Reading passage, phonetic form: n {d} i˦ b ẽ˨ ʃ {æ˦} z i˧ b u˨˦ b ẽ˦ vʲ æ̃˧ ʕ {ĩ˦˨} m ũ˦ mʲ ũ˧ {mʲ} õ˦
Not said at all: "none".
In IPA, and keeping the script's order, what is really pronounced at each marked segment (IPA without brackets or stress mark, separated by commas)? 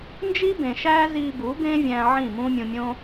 d͡ʒ, æ˦, ĩ˦˨, mʲ